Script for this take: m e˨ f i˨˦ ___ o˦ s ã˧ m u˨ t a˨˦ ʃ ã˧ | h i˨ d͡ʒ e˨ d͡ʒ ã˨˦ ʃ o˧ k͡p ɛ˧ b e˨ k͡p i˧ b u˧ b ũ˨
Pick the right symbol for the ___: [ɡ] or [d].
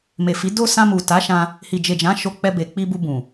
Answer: d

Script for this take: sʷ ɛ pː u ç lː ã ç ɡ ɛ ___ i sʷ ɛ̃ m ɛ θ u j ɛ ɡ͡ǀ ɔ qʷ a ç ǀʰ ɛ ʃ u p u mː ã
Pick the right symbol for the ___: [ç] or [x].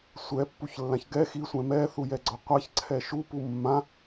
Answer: x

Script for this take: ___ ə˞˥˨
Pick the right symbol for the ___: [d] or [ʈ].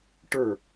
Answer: ʈ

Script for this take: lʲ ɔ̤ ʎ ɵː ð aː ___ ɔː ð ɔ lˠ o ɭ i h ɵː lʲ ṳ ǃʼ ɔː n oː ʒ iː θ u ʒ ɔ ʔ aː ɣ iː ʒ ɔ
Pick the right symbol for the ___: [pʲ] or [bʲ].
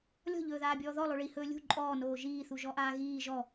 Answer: bʲ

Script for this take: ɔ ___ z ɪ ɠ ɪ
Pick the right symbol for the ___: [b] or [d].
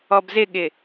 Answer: b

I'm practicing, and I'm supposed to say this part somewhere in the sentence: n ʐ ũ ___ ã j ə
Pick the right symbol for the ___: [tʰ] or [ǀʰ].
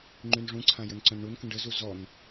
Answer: ǀʰ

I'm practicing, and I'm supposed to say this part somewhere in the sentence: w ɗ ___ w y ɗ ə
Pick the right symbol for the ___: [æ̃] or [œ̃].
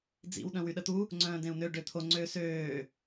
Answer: œ̃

